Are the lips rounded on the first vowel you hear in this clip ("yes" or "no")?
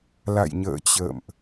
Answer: no